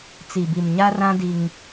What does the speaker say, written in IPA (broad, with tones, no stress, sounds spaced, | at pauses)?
t͡s i˨ b i˨ m ɲ a˦ r ã˦ d i˦ ŋ